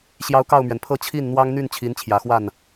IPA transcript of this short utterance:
ɕjɑ˧˥ʊ̯ kɑ˥˩ʊ̯mɥɛ˩npʰɤ˥˧ t͡ɕʰi˥˩nn̪wɑ˥ŋn̪y˥˩n t͡ɕʰi˧˥nt͡ɕʰjä˨˩xwa˥˩n

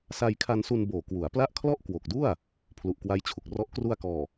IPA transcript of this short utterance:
sa˧jkʰa˧nsu˧n boː˨˩kwu˩˦a̯pla˥˩ʔ kʰlɔ˥˩ʔkwo˨˩k̚du˥˩a̯ | pʰlu˨˩ʔkwa˦˥jt͡ɕʰu˨˩k̚rɔ˦˥ʔ kru˧a̯kɔː˨˩

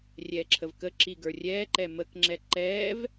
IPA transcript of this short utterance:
rʲɛːǁʰəvkə ǁiɡə˞rʲɛːǃɛ məkŋ͡ǁɛ ǃɛːv

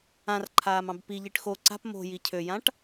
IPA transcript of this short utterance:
ãrǃʰaːmɑ̃b piʎiʈ xo ǀa̤p mo̤ jicʰøjãʈ

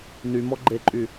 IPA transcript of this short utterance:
nymɔ ɡ͡ǃeǃʼy

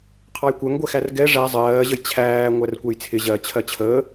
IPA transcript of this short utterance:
qʰɑjkʷɜŋɡʷɛxær ɡɛ ʐæ zˤɜːʑəj t͡ɕʰæː ŋʷærkʷɛjt͡sʰɪ ʑɜ t͡ɕʰɜt͡ɕʰəː

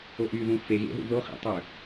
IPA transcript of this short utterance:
oʔyðũ feɣḛɦṵ ðoχḭtˤø

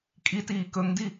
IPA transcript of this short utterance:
kʼitiː kɵŋdi

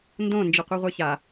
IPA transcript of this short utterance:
ndõ nd͡ʒiqʷɛʁʷɛça

